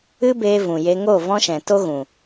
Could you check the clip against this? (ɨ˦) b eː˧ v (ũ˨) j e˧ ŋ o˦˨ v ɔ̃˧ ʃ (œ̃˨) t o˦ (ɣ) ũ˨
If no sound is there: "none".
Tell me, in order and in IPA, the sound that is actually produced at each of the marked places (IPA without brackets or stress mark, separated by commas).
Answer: ɨ˦, ũ˨, ɛ̃˨, ɣ